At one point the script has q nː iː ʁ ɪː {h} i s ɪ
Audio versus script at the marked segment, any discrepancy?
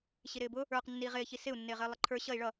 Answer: yes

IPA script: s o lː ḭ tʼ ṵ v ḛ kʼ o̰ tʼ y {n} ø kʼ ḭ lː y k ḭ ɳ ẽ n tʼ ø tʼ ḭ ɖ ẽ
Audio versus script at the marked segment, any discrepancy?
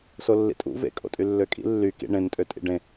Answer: yes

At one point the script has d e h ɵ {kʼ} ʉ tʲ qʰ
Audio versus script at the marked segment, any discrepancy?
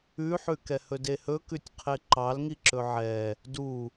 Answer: yes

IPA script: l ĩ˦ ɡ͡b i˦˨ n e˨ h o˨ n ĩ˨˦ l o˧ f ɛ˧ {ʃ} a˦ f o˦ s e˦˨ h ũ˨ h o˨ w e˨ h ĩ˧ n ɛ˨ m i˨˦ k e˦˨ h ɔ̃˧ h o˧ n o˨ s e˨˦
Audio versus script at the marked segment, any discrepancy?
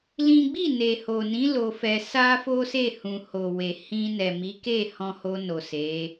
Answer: yes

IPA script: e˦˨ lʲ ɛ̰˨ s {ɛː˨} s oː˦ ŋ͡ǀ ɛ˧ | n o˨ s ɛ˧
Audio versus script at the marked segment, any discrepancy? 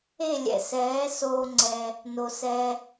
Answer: yes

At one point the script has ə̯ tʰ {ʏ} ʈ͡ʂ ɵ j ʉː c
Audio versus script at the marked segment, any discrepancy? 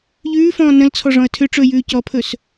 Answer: no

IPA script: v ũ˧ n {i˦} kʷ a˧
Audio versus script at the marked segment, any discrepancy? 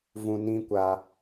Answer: yes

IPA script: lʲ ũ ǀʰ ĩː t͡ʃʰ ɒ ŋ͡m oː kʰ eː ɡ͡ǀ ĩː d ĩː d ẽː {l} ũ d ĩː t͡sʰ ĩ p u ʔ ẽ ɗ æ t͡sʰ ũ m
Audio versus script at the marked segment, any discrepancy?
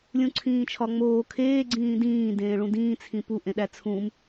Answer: yes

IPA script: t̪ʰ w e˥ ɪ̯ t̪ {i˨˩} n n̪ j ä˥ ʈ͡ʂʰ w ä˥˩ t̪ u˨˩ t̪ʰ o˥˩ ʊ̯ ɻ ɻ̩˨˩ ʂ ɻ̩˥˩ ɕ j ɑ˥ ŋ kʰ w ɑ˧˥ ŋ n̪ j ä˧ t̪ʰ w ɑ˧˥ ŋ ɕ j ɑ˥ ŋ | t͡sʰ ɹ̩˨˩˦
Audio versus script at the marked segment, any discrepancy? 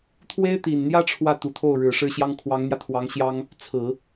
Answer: no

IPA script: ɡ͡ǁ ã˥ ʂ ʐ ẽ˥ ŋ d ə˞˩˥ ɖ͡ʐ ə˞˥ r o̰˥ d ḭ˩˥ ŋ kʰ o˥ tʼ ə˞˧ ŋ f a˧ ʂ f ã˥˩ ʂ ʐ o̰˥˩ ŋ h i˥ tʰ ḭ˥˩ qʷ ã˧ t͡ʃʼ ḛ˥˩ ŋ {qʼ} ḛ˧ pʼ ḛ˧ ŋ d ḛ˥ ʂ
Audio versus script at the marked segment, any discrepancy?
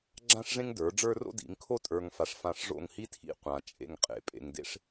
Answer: no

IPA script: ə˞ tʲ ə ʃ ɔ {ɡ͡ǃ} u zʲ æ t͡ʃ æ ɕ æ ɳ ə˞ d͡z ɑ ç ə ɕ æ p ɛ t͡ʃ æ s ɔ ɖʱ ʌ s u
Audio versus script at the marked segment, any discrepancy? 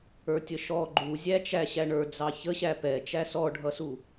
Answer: no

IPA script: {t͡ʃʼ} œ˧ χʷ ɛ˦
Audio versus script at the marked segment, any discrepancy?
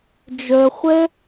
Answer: yes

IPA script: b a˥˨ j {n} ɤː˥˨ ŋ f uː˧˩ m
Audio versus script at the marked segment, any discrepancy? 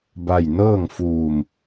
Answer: no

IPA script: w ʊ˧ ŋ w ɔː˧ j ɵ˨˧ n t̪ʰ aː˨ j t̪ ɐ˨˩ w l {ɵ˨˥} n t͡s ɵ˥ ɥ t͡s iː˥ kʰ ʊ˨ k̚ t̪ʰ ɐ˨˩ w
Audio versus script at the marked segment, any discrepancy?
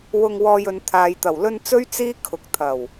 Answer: yes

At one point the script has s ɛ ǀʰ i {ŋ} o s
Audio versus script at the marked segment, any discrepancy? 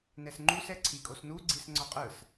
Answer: yes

